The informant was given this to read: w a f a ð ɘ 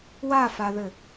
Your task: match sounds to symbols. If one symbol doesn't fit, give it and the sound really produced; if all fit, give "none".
none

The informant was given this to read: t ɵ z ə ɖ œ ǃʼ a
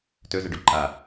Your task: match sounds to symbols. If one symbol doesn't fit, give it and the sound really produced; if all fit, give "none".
œ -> ɵ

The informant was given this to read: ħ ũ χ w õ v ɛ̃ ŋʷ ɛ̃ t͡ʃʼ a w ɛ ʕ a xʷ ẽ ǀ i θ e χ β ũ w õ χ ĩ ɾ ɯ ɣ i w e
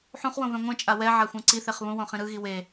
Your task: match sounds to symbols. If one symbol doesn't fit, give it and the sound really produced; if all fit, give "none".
none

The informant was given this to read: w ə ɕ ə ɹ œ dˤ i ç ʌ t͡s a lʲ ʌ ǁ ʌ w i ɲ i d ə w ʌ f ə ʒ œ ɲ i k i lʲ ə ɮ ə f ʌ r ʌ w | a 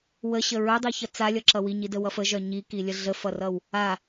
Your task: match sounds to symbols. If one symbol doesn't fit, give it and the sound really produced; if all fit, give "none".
none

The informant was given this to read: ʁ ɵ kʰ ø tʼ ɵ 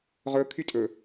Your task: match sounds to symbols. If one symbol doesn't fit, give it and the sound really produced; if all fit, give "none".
ø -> y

